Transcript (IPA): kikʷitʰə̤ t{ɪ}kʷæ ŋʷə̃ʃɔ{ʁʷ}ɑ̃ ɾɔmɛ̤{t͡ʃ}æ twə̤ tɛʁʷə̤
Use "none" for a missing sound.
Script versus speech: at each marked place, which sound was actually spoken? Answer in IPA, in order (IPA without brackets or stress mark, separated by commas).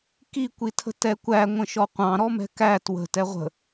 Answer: ɛ, qʷ, k